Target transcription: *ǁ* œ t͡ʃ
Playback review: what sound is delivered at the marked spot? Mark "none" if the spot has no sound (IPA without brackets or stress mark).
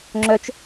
ŋ͡ǁ